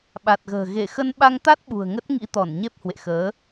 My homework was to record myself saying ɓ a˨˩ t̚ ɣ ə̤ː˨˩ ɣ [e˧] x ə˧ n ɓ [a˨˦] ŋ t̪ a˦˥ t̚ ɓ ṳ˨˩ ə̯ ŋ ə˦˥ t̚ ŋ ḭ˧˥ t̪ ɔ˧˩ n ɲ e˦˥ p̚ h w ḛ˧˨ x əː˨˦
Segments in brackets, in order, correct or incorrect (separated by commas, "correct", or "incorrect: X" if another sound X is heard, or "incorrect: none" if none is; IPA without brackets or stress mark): incorrect: e˧˩, incorrect: a˧